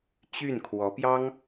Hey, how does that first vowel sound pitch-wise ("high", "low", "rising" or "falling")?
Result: falling